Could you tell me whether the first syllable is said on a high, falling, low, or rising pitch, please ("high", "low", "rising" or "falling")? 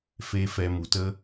high